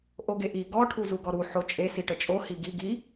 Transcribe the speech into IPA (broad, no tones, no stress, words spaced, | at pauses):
ʔoɡeʔi ɡɔ ʈʰuzuɡɔɾu ħot͡ʃʼe siʈət͡ʃʼo hiɡi ɡi